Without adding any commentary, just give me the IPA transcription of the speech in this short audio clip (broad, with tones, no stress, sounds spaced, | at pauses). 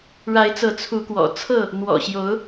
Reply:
ɻ a˨˦ ɪ̯ t͡s ɤ˨˦ t͡sʰ u˨˦ k w ɔ̰˨˩ t͡sʰ ɤ˥˨ | n̪ w ɔ̰˨˩ ɕ j o˨˦ ʊ̯